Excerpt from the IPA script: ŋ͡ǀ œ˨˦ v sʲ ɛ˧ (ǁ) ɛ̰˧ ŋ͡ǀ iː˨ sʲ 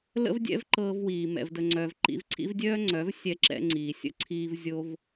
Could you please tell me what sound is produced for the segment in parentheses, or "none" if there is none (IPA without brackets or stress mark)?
ǁ